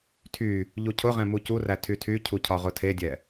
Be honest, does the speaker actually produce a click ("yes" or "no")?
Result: no